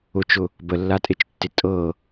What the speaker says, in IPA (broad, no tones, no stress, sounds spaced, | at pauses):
ʊ t͡ʃ ʊ | b ə lː a tʼ e t͡ʃ tː ɪ tʼ ɤ